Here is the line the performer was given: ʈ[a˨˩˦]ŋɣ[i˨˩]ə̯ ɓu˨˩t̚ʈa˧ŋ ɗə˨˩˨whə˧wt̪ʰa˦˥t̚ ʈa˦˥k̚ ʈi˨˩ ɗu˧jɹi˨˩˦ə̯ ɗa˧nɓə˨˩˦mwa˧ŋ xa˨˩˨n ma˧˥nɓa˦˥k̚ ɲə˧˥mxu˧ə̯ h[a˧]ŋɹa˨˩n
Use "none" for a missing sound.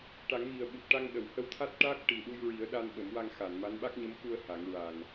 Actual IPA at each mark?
a˨˩˦, i˨˩, a˨˩˦

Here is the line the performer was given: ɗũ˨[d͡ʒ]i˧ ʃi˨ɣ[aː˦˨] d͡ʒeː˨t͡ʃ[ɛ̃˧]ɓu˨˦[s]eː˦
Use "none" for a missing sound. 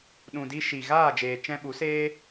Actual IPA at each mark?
d, aː˦˨, ɛ̃˧, s

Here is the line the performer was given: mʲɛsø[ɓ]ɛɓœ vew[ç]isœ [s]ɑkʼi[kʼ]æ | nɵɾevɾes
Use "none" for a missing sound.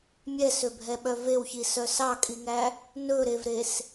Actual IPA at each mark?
bʱ, ç, s, ŋ

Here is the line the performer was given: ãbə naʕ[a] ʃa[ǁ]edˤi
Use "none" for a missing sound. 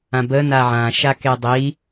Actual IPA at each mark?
ã, k

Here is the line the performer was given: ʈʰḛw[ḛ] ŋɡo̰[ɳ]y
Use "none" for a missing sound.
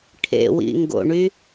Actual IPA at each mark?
ḭ, ɳ

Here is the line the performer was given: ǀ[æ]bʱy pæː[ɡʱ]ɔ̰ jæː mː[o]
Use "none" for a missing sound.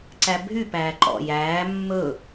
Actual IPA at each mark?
æ, ǃ, ɵ

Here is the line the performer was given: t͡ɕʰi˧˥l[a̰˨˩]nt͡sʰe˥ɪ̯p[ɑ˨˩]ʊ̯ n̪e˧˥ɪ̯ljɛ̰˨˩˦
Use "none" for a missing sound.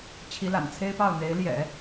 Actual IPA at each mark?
a̰˨˩, ɑ˥˩

